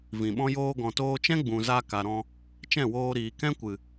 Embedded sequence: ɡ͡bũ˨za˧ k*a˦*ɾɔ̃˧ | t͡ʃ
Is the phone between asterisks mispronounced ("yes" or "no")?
yes